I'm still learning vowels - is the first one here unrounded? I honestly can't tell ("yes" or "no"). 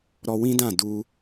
no